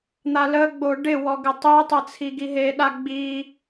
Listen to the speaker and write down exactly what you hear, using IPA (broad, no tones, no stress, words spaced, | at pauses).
n̪aləɡ͡bo ɖɪwɔ ɡɪtˤetˤə t͡sʰiɡiɦeɗa ɡ͡bi